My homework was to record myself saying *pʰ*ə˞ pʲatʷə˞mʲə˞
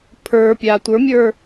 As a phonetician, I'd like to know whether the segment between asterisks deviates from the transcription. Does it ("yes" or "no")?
no